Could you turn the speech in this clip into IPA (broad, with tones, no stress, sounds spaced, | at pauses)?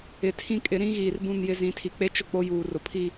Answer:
ɪ˨ tʰ ĩ˦ kʼ ɪ˨˦ ɾ ĩ˦ ɣ iː˨ r b ũ˦˨ n j ɪ˦ z ĩ˨˦ tʰ i˨ k͡p e˦ t͡ʃ ʊ˦ k͡p o˦ j uː˨ r ʊ˨ pʰ i˦